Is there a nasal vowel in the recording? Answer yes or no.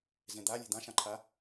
yes